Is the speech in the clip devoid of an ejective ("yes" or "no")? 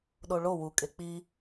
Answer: no